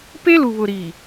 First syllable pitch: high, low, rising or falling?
high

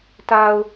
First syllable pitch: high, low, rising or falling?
low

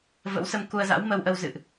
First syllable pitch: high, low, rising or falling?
rising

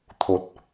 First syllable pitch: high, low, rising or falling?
low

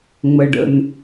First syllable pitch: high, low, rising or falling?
low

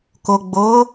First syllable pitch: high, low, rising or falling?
low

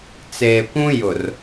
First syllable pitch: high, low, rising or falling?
low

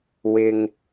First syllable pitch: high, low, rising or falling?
low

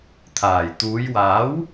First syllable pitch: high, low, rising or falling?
low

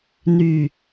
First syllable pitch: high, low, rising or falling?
low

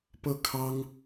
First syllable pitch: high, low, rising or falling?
falling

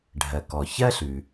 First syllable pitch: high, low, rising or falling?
low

